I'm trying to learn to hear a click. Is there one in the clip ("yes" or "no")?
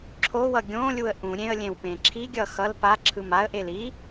yes